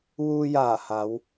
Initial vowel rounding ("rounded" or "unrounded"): rounded